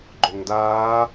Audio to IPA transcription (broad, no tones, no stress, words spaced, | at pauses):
ɡ͡ǃoŋdaː